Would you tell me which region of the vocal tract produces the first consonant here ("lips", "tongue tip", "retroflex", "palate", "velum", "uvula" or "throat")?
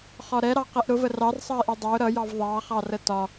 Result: uvula